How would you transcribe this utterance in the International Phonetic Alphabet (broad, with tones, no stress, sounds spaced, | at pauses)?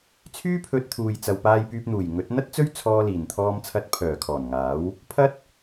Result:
t͡sʰ yː˥ pʰ ɵ˧ t̚ t̪ʰ uː˨ j t͡s ɐ˨ w p aː˧ j p yː˧ p̚ n̪ uː˨˩ j ŋ ɵ˨˥ t̚ n̪ ɐ˥ t̚ t͡s ɵ˥ ɥ t͡sʰ ɔː˧ l iː˨˩ n t̪ʰ ɔː˧ m t͡sʰ ɐ˧ t̚ pʰ œː˨˩ kʰ ɔː˨˩ n ŋ aː˨˥ w | pʰ ɐ˥ t̚